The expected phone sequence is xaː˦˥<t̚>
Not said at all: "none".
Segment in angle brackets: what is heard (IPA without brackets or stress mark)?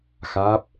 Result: p̚